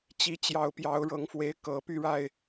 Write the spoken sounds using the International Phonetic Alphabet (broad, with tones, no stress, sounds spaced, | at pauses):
t͡ɕ i˨˦ t͡ɕ j ɑ˨˩ ʊ̯ p j ɑ˨˦ ʊ̯ ɻ ɤ˨˦ ŋ f w e˨˦ ɪ̯ k ɤ˨˩ p y˥˨ ɻ a˥˨ ɪ̯